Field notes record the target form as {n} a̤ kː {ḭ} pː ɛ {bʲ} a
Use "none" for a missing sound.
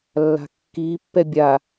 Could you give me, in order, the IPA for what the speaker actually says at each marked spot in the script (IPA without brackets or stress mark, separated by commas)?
lː, i, bʲ